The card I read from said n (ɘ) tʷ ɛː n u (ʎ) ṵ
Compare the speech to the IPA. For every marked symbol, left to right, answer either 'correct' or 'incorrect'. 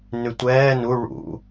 incorrect: ʉ, incorrect: ɭ

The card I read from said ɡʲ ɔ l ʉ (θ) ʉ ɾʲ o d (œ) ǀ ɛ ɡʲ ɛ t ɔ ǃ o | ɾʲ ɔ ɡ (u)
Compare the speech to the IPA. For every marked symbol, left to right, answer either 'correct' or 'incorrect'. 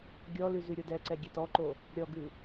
incorrect: z, incorrect: ɛ, incorrect: ʉ

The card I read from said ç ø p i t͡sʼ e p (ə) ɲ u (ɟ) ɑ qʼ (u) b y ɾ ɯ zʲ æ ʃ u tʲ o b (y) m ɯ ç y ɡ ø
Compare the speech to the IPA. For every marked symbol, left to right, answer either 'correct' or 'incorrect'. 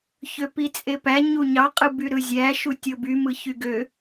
incorrect: æ, incorrect: ɲ, incorrect: ɯ, correct

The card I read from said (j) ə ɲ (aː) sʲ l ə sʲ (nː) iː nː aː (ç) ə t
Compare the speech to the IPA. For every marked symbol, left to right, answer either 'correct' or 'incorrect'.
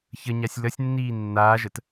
incorrect: ç, incorrect: a, correct, incorrect: ʒ

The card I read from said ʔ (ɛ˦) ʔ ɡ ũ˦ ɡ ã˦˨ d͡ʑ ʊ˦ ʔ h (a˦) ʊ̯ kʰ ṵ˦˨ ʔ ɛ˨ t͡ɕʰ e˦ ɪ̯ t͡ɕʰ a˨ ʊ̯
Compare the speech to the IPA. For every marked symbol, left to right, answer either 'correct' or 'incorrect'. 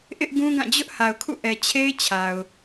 incorrect: ɪ˦, incorrect: a˨

